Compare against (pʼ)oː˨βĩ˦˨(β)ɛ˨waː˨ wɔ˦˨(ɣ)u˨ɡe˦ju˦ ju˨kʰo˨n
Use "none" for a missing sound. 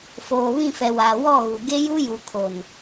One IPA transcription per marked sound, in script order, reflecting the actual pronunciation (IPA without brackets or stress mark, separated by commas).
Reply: f, f, ɣ